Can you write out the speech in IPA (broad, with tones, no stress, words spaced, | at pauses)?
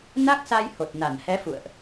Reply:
na˦˥k̚sa˧j ho˨˩t̚na˧˩nhɛ˨˦ fṵ˧˨ə̯ʔ